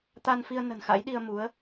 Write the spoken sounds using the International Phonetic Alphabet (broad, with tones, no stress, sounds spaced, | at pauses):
t̪ a˧ n f i˧ ə̯ n ə̤˨˩ n x a̰˧˥ j ɗ i˧ ə̯ m u˨˦ ə̯